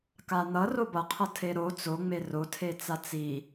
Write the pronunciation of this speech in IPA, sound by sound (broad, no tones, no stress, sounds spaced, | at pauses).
k a n̪ ʌ r o b ʌ qʰ ʌ tʰ e ɾ o t͡s o ŋ͡m e r o tʰ e t͡s a t͡s i